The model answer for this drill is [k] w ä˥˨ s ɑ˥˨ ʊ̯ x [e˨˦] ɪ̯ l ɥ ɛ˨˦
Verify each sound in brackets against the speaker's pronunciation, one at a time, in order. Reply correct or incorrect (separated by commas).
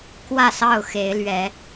correct, correct